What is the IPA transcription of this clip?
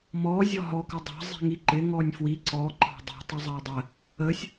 mɔ zʲɔɦɔ kədˤɑ̤ zˤi̤ŋiǃɪ ŋɔnʲfwi ǀɔ ǃɑ̤dˤi̤ tˤəzˤɑdˤə | əsʲ

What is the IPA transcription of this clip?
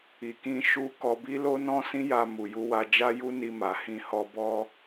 i˨kĩ˧ ʃu˦ kɔ˧bi˦ lo˦nɔ̃˦sĩ˦ ja˧mu˨ju˧wa˧ d͡ʒa˦ju˦ni˧ ma˨hĩ˧hɔ˧ bɔ˦

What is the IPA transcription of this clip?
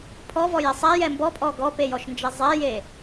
pʰɔvɔje sˤɛjɛ mbɔpʼɔ ɡɔpejɔʃnd͡ʒɛ zˤɛje

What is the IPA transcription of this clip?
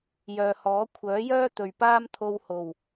jœː˨hɔː˨˥ kʷʰœː˨˥jœː˥ t̪ɵ˨ɥpaː˥mt̪ʰo˧w ho˨˩w

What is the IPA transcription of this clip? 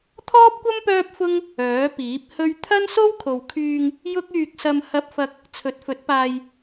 t̪ʰɔː˥p̚kʷɐ˥m pœː˥p̚fʊ˥ŋ | œː˨˥piː˨˥p̚ hɵ˥ɥ t̪ʰɐ˥nso˥wkʰo˨wkʰyː˧ŋ | jʊ˥k̚yː˧k̚sɐ˧m hɐ˧p̚fɐ˧k̚ | t͡sʰɵ˨˥t̚fɵ˨˥t̚paː˧j

